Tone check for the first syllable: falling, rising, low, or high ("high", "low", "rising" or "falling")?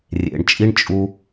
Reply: low